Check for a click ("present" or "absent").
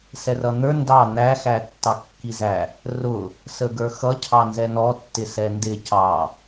absent